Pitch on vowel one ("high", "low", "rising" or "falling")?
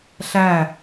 falling